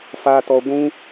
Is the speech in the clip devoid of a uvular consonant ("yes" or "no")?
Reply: yes